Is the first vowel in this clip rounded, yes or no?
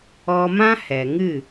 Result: yes